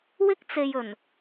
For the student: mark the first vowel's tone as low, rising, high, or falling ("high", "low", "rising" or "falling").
high